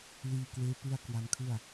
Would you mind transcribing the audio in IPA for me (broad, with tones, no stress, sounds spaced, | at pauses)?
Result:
l iː˧ k w eː˦˥ p ɯ˥˩ a̯ k w a˧ n kʰ ɯ˥˩ a̯